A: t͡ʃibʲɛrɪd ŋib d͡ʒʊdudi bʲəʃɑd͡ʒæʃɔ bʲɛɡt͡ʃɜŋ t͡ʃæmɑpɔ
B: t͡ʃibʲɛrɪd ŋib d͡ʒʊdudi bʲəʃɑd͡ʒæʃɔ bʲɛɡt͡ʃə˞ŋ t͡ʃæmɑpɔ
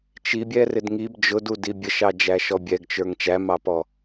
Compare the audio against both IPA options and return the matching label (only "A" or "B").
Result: B